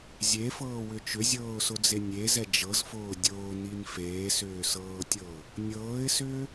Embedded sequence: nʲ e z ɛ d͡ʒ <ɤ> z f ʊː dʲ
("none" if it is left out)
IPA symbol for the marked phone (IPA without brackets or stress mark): ɤ